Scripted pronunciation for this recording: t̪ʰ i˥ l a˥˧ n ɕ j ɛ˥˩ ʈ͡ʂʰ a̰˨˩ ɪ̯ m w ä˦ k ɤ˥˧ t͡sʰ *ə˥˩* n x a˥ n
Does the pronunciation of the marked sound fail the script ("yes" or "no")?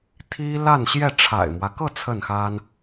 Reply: no